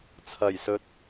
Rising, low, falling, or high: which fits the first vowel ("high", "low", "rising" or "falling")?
low